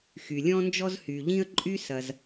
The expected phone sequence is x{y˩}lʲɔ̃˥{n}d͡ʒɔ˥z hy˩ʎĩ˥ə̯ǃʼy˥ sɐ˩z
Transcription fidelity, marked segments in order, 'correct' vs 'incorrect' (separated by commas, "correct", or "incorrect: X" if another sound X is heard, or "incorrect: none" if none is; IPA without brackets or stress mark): correct, correct